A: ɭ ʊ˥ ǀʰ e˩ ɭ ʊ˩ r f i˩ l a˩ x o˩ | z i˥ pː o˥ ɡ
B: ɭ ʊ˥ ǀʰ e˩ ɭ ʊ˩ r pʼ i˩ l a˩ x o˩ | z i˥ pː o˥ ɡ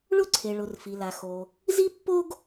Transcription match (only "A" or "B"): A